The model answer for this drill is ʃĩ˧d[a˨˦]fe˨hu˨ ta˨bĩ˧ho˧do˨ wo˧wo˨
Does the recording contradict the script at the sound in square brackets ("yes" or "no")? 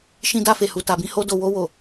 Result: yes